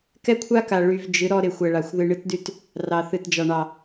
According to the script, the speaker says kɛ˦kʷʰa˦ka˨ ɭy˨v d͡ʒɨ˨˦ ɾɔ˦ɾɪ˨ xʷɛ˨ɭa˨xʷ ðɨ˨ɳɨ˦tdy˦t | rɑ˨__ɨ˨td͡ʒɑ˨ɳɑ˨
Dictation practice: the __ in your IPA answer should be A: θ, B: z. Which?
A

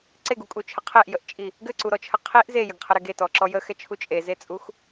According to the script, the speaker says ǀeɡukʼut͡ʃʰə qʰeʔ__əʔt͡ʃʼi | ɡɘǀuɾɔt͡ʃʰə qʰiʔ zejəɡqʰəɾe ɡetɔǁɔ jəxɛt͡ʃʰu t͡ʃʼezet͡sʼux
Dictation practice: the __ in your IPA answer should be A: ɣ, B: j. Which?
B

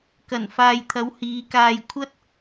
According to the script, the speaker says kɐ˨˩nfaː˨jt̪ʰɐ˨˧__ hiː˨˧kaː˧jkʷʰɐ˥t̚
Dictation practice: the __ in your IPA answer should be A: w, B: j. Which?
A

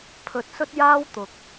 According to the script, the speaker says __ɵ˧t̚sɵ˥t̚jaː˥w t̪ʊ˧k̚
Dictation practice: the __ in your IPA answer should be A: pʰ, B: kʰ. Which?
A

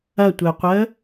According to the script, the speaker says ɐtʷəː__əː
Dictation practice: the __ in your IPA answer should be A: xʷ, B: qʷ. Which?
B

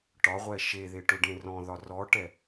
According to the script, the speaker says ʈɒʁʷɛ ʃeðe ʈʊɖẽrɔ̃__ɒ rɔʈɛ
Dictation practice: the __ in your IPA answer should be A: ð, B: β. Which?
A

